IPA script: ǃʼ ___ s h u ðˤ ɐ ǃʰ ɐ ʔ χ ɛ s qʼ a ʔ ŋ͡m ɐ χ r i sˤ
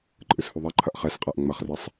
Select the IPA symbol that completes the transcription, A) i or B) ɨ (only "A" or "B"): B